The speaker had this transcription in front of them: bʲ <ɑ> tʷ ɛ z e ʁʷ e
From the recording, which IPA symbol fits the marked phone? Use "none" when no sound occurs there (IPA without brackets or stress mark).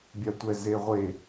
a